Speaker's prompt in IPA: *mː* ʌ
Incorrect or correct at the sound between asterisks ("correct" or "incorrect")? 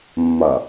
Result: correct